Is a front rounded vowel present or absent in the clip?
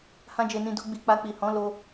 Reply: absent